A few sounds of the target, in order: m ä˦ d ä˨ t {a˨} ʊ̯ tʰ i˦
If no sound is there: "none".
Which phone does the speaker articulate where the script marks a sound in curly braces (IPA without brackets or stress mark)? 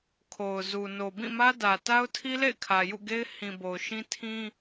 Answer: a˦